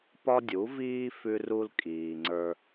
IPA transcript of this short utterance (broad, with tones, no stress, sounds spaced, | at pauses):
p ɒ˦ dʲ u˩˥ v iː˦ f ʉ˦ r u˦ l kʼ iː˨ ŋ͡ǀ ə˞˦